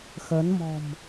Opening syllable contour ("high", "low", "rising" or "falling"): rising